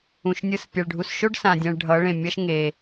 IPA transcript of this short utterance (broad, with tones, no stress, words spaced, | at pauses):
ũ˨ʃnʲɯ˧s pʲɛ˨ɭɖʱu˧s ʃo˦ɖ sã˧dʲɛ̃˧ɭ ɖʱʌ˨˦ɭẽ˨mʲʌ˦ʃ ŋe˧